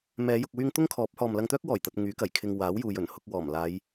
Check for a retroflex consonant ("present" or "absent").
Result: absent